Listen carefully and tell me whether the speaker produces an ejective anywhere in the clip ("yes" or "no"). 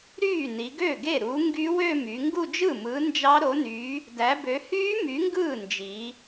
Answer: no